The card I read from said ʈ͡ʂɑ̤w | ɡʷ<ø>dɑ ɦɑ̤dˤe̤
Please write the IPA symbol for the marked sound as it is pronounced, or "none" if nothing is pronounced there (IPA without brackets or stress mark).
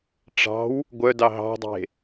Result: œ